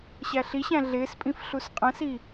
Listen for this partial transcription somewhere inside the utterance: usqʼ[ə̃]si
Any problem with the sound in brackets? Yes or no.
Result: no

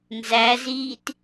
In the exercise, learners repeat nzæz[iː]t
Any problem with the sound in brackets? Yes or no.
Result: no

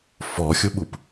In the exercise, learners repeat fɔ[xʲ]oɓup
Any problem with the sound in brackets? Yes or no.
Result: no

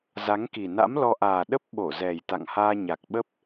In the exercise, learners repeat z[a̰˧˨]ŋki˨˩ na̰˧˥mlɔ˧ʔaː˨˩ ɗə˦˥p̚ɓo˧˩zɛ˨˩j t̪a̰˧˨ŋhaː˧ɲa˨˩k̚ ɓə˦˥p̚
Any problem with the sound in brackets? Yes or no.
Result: yes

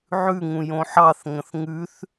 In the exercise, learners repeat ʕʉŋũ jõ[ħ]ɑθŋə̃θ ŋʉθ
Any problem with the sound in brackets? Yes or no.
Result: no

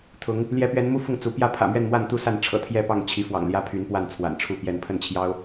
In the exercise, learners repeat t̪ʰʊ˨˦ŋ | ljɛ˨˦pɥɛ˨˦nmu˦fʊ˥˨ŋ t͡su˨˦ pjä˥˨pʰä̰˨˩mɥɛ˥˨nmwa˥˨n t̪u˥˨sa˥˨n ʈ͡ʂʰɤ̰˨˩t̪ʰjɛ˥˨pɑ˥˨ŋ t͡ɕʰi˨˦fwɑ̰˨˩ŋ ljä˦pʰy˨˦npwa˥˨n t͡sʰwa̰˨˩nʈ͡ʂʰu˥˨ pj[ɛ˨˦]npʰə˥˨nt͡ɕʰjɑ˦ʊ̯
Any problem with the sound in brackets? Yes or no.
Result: no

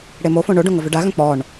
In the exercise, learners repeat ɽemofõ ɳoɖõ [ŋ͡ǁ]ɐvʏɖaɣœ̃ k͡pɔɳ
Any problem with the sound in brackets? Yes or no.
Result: yes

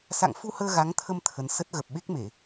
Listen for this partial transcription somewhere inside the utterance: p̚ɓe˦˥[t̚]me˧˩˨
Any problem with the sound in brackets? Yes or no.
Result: yes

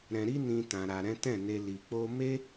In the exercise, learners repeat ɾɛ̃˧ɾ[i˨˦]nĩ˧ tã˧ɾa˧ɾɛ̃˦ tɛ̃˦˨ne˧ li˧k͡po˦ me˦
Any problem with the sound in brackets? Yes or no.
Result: yes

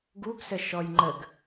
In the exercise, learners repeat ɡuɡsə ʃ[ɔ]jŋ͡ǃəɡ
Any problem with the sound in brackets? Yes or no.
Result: no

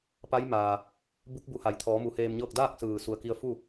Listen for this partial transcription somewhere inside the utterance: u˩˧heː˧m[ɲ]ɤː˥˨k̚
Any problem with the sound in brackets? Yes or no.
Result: no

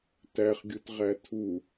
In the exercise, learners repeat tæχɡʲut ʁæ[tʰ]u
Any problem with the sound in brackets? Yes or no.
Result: no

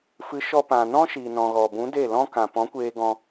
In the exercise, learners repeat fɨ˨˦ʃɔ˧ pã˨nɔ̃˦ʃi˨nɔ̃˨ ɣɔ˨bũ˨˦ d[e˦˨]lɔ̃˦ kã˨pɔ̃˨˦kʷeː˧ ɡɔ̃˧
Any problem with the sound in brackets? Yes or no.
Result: no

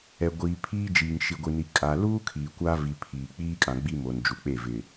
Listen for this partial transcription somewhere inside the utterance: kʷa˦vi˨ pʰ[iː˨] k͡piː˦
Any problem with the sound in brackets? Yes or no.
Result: no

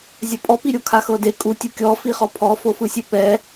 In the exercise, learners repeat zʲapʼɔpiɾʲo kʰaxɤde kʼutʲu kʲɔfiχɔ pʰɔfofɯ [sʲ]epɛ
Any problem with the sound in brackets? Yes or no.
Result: no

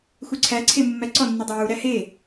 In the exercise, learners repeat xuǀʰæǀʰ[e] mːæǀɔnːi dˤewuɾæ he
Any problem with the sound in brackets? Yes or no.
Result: no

